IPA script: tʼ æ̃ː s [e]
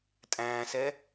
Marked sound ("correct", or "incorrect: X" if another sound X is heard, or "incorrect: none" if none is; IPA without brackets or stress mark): incorrect: ɛ